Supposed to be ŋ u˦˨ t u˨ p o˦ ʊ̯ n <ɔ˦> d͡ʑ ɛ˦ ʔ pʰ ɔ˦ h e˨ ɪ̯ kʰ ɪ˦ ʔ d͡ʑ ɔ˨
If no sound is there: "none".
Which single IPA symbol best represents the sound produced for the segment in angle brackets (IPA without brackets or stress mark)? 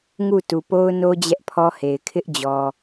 o˦